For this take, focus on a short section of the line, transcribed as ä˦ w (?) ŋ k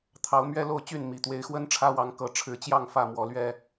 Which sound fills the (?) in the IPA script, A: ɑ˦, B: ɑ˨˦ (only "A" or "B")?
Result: B